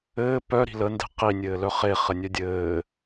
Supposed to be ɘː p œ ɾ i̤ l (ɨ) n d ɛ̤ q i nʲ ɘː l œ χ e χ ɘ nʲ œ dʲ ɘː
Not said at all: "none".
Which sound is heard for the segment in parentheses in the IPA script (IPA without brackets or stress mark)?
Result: ə